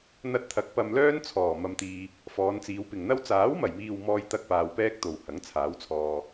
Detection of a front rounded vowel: present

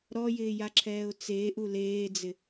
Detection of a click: present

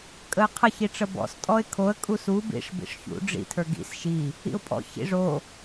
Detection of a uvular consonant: present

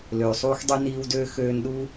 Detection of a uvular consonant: absent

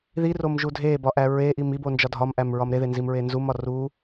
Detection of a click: absent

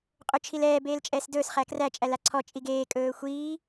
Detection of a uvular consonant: present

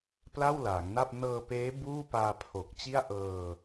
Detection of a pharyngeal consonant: absent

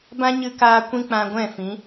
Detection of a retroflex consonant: absent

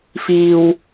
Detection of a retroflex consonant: absent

